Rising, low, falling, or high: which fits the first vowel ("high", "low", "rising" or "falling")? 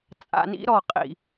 low